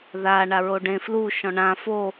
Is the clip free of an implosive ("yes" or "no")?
yes